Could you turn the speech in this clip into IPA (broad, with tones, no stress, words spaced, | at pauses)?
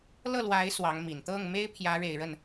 lɤ˥˩lwa˧˥ɪ̯ swɑ˧˥ŋmi˨˩n t̪ɤ˥˩ŋme˥ɪ̯ pʰjä˧˥ɻe˨˩ɪ̯ɻə˥˩n